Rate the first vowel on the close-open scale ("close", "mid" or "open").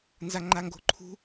open